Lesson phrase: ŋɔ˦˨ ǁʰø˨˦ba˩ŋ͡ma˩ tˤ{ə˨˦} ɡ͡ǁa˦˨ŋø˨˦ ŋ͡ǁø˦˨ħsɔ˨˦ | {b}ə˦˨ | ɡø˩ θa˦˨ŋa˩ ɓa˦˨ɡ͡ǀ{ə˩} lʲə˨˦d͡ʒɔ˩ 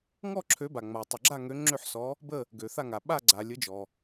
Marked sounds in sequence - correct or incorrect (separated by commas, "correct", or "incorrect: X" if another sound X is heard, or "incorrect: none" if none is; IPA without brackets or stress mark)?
incorrect: ə˩, correct, incorrect: a˩